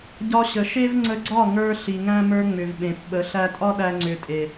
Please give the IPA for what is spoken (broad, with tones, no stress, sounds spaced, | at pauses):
ɟ ɒ˧ ɕ ə˨ ʃ e˦ v ŋ͡ǀ ə˧ ɡ͡ǀ ɒ˦˨ ŋ ə˞˧ ɬ i˨ ŋ æ̃˦ m ə˞˧ ŋ͡m ʏ˨ v ɓ ẽ˨ p ɓ ə˨˦ ɬ æ˧ tʼ ɒ˦ ɗ æ˧ ŋ͡ǀ ʏ˧ tʼ e˨